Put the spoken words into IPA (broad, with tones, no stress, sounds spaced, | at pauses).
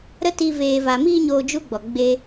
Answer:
ɾ ə˦ t iː˧ v eː˨ v a˨ m iː˧ ɲ oː˧ d͡ʒ u˦ ɡ͡b ɔ˨ ɡ͡b e˦